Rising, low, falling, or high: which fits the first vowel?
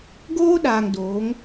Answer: high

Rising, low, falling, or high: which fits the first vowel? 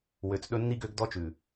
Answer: low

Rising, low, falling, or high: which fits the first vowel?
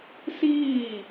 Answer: falling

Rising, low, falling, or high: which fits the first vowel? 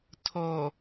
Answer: low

